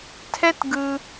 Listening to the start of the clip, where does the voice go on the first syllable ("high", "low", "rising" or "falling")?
high